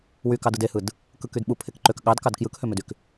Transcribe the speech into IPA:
wykɑd ɯdehɯd | kɯkydɓu pʰekǃøk ɠɑdkɑd kjɯkhømødyk

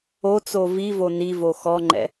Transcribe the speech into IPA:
o t͡sovivo nivo xɔŋ͡ǃɛ̰

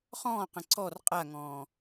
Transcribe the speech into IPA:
χɔ̃ːqə̃ ǀɔr qʼaŋɔ̃ː

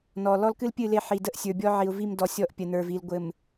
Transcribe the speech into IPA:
nɔ˨ lɔ˦lkɨ˦lpʲɨ˦˨ le˦˨ħi˨də˦ʔsʲə˞˨ bʲɔ˦ʕi˨ʊ̯vi˦˨mdɔ˨ sʲɔ˦ʔ pʲə˨nə˞˨vi˨l ɡʷɘ˨m

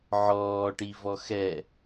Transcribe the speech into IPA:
ʕɔːʈivɔ xɛ

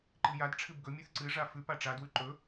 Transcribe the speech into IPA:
ǃɨjad ʈ͡ʂʰɨbɡɵ mʲʉθǀɨ ʐafʉ paʈ͡ʂa dwʉǃɵ

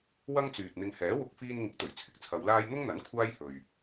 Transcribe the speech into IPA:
wɐ˥ŋt͡syː˨t̚n̪ɪ˧ŋ hɛː˨˥wʊ˧k̚ fiː˧nŋɪ˨˥k̚t̪ɵ˨˩ɥ t͡sʰɪ˨k̚t͡sʰɐ˨˧wlaː˥j n̪ʊ˥ŋn̪ɐ˨˥n kʷʰaː˥jhɵ˨ɥ

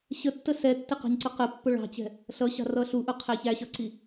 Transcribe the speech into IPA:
ɕətːə sɛtːɪqɑ̤ɲǀʌ qəpːʊ ɭɑ̤t͡ɕɛ̤ | ɬʌɕɑ̤rʌ ɬuʔʊqʰæ çæɕʌǀi

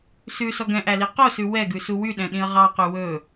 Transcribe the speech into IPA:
sʉsɔ ɡɛ̃ʔæli qosʉ wɛɡʉsu wyɗɛ̃ɗĩə̯ ʁɑqy wɵ

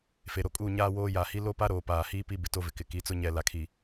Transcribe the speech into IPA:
fe˨ɾo˨kʼuː˦˨ ɲaː˦woː˦ ja˨hi˦ lo˦pa˦ɾoː˨ paː˨hiː˦ pi˦ bɪ˨to˦vɪ˨kɪ˨ ki˨˦t͡sʊ˦ ɲɛ˨la˨kʰi˨

